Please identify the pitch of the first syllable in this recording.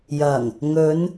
low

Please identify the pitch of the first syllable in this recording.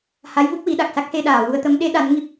rising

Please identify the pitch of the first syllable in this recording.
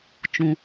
low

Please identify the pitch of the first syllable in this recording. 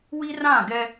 high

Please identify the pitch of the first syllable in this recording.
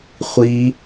high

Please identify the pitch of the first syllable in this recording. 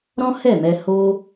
high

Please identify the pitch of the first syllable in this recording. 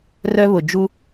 high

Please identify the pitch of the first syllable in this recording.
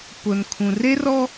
low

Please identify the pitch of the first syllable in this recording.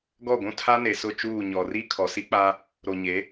falling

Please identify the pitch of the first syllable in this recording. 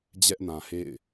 high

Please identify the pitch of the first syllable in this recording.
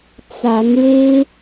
rising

